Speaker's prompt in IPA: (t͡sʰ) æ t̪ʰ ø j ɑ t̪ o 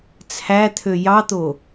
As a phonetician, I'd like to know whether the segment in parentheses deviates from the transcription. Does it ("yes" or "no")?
no